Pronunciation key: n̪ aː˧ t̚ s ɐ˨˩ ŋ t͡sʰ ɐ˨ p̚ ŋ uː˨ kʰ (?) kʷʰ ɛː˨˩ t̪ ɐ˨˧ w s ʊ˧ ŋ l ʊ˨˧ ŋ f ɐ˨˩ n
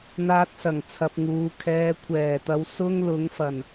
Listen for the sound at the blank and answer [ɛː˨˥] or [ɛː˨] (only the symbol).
ɛː˨